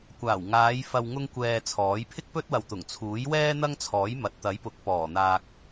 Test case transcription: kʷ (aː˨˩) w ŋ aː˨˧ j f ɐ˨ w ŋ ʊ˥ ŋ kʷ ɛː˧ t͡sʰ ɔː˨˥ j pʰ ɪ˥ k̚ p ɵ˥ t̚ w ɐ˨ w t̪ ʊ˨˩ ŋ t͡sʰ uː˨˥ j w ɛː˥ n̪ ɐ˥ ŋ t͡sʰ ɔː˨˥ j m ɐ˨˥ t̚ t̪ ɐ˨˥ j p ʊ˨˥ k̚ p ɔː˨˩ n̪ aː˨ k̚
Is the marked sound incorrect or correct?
correct